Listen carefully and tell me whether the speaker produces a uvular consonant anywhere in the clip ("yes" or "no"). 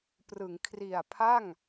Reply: no